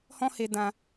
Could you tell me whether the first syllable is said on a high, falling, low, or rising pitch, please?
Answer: high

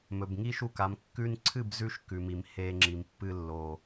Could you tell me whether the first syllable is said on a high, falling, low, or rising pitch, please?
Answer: low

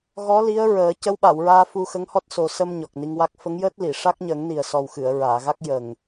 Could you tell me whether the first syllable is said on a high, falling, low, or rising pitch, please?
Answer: rising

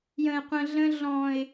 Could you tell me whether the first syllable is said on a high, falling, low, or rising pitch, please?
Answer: low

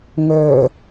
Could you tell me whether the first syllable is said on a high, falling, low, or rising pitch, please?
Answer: low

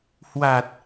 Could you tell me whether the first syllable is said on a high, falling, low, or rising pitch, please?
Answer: low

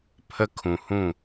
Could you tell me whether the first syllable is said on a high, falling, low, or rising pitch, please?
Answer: high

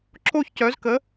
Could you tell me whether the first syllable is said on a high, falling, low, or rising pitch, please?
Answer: falling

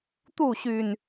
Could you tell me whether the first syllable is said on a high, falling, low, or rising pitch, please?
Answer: falling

